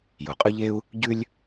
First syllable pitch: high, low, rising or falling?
low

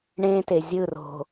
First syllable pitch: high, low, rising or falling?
high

